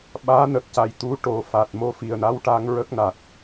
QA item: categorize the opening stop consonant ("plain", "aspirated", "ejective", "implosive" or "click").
implosive